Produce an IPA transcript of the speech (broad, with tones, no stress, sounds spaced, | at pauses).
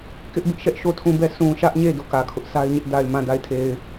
k ɪ˦ ʔ b ɪ˦ ʔ ʃ ɛ˦ ʔ ʃ o˦˨ tʰ ũ˦˨ b ɛ˦˨ sʰ ũ˨ ʃ ä˦ ʔ ɲ e˦˨ d o˦˨ k ä˨ kʰ ʊ˦ ʔ sʰ a˦ ɪ̯ ɲ ɪ˦ ʔ d a˨ ɪ̯ m ã˦˨ d a˦˨ ɪ̯ tʰ e˨ ɪ̯